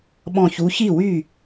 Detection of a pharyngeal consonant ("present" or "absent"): absent